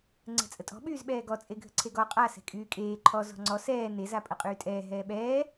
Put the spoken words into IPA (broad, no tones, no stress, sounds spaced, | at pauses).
ŋ͡ǀ ɛ̤ t͡sʼ ə tʼ ɔ̤ ɓ yː z ɓ ɛː ɡ ɔ t͡sʼ e ɡʱ ə̤ ǀʰ e ɡ ɔ qʼ a s ɛ̤ kʼ yː kʼ eː ǃʰ ɔ z ɔ̤ ŋ͡ǀ ɔ s ɛː n e z a pʼ ə qʼ yː tʼ ɛː ɦ ɛː ɓ ɛː